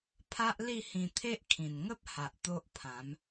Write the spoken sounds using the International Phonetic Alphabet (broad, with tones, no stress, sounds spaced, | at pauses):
pʰ a˦ ʔ l i˥˧ h ĩ˧ t̪ʰ e˦ ʔ kʰ ĩ˨˩ n ŋ ə˦ p̚ h a˨ ʔ t̪ o˦ ʔ pʰ ã˨˦ m